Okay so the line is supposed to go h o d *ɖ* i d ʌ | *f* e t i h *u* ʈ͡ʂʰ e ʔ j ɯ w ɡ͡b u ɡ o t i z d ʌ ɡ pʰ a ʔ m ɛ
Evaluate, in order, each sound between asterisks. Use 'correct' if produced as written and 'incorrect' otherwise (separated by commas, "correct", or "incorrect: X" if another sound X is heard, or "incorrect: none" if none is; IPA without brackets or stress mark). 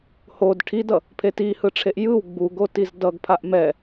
incorrect: ʈʰ, incorrect: pʰ, incorrect: ɯ